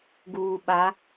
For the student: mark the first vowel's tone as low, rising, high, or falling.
low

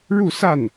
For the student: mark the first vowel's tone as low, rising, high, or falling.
falling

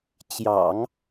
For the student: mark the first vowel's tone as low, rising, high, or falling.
low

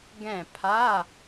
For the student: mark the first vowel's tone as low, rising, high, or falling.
falling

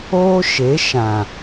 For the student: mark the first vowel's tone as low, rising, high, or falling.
high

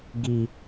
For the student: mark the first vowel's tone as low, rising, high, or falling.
low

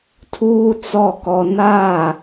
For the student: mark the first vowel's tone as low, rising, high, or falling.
high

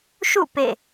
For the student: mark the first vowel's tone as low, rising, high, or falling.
falling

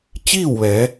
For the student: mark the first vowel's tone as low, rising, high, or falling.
falling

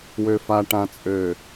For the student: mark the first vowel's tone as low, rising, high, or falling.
low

